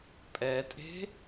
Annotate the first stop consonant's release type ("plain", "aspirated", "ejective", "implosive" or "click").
ejective